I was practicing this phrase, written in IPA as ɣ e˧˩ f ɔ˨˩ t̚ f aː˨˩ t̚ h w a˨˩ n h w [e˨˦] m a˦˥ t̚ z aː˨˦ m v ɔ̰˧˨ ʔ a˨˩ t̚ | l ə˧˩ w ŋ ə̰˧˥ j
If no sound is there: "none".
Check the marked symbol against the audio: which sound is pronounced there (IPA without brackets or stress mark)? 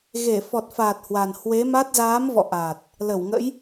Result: e˨˦